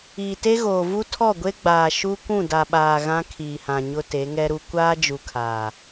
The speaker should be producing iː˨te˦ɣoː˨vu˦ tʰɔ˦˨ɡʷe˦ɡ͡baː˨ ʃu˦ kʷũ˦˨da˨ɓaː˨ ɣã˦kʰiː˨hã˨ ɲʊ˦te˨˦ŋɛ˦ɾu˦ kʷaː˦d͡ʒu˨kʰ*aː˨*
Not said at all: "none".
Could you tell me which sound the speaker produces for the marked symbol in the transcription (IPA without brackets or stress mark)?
aː˨